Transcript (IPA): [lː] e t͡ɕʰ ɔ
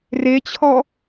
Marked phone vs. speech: incorrect: r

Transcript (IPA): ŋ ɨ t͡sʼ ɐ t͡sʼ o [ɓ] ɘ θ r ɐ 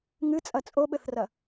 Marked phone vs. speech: correct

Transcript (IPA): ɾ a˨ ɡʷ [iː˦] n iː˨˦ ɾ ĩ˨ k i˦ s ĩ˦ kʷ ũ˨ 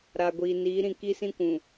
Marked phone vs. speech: incorrect: iː˨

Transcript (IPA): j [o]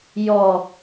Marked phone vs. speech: incorrect: ɔ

